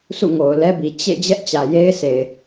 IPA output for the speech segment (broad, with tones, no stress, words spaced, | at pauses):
sṵ˦˨ŋo˨ʊ̯lɛ˦bi˨ t͡ɕḛ˦˨ d͡ʑɛ˦ʔt͡ɕä˨je˦ɪ̯sʰe˨ɪ̯